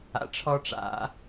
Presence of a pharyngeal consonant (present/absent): absent